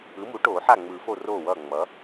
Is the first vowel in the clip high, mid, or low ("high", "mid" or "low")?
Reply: high